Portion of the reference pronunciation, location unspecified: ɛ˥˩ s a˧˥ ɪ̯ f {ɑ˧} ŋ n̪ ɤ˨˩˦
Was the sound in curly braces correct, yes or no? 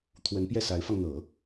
yes